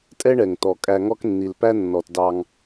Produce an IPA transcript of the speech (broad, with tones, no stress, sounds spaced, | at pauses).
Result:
tʼ ɛ˥ ɳ ɛ˩ ŋ t ɔ˩ kʼ æ˨ ŋ ɔ˦ k nː i˩ l p æ˥ nː ɔ˩ t d ɑ˨ ŋ